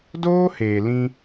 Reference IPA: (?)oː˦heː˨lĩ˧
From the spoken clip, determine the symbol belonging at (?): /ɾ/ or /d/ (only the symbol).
d